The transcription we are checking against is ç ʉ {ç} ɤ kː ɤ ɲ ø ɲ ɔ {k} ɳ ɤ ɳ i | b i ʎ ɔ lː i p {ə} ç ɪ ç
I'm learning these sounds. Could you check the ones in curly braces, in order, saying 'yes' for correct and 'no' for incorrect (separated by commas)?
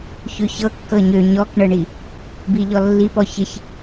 yes, yes, no